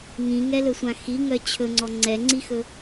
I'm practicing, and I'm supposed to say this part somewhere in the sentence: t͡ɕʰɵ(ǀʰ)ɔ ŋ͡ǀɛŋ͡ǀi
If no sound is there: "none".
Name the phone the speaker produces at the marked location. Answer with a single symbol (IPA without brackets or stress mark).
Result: ŋ͡ǀ